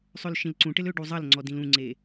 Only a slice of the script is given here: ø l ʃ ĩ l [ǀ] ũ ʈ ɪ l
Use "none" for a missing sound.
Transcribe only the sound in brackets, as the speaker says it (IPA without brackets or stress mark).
ǀ